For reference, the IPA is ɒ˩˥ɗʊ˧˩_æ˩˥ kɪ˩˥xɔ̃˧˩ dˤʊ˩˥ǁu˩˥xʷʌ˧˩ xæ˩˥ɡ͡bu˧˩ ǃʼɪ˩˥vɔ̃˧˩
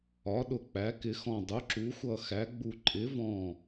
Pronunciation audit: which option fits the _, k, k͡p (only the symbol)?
k͡p